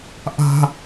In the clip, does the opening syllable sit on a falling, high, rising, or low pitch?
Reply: high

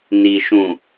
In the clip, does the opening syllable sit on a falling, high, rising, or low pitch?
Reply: low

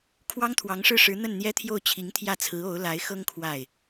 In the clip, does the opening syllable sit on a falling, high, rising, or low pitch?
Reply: high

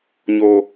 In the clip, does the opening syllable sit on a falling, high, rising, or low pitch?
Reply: low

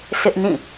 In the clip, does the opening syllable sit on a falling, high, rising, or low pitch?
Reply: high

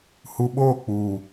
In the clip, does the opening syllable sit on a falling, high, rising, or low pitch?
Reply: low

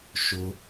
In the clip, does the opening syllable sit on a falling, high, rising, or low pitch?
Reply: high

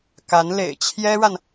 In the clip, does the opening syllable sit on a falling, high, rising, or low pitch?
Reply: rising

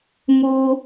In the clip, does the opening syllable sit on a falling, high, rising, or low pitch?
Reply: high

